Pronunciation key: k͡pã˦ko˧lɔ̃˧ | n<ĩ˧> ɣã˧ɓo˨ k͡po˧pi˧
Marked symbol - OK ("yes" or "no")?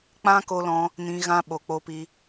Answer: yes